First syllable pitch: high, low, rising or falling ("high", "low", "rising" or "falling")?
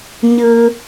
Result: high